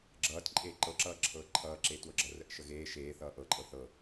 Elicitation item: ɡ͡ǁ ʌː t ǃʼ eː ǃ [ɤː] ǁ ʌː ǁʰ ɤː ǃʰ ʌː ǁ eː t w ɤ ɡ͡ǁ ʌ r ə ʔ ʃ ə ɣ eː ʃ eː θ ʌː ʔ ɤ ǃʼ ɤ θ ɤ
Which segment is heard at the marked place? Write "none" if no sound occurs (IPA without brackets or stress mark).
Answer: ɤ